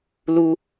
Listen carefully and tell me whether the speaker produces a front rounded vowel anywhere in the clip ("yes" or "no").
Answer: no